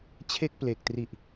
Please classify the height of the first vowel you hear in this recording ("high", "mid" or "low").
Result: mid